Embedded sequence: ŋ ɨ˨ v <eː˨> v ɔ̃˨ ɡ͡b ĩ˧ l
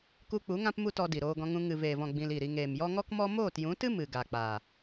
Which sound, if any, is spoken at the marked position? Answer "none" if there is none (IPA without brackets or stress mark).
eː˨